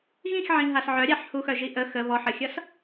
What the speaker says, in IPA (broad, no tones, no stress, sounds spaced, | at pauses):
ɣ ĩ x ʕ ĩ ɦ a s ʕ œ ɾʲ a ħ h u x œ ʒ i ʔ ə x ə β ɔ ħ ə xʲ ʌ s